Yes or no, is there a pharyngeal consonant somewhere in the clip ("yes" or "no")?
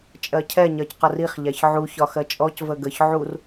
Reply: yes